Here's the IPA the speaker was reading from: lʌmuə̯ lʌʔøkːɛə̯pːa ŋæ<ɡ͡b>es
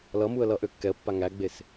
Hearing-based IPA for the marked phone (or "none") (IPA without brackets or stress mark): ɡ͡b